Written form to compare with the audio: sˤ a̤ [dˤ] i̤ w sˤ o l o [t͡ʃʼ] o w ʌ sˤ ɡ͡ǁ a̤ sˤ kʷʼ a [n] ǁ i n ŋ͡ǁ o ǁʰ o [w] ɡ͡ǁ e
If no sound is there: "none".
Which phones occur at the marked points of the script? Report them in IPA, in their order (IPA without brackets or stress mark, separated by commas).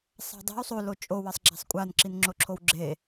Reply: dˤ, t͡ʃʼ, n, w